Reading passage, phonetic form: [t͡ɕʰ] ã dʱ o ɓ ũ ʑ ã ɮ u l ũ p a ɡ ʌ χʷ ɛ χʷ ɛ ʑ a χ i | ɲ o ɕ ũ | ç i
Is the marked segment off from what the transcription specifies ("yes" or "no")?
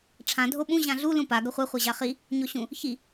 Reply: yes